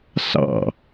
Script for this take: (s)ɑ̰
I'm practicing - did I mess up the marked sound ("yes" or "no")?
no